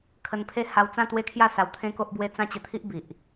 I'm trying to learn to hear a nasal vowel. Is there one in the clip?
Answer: yes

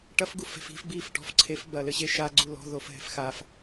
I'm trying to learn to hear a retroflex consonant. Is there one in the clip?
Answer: yes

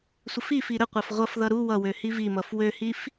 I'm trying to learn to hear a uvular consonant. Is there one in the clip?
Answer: yes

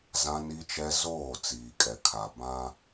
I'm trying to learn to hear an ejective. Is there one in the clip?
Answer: yes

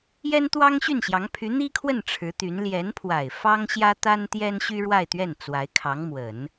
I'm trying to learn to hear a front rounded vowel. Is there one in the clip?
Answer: yes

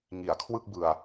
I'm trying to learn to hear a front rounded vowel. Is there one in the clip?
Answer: no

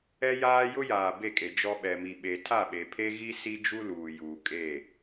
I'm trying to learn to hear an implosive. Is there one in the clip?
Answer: yes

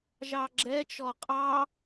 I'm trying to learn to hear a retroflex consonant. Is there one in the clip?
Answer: no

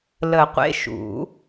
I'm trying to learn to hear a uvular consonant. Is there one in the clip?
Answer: yes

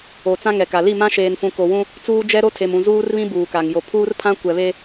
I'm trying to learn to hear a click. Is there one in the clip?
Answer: no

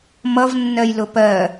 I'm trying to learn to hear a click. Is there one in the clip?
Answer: no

